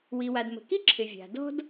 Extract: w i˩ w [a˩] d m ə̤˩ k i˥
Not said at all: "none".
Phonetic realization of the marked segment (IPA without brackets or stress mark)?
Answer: a˩